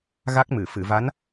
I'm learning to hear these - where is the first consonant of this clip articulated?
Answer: velum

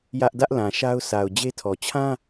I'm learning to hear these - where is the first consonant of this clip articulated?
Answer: palate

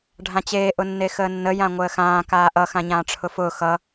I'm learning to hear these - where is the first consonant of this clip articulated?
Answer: retroflex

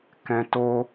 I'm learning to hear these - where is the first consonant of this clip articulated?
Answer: velum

